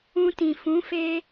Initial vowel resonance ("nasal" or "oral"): nasal